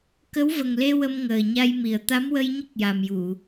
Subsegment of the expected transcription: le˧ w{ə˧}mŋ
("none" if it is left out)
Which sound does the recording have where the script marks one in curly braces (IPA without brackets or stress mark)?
ə˧